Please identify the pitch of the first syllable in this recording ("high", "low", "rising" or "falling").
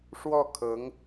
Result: falling